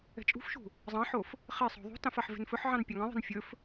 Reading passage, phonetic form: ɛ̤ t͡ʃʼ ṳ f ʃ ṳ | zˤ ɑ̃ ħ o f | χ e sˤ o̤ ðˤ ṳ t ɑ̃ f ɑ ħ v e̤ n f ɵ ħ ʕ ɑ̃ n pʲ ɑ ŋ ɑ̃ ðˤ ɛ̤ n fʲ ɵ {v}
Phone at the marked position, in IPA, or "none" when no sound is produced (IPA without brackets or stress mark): f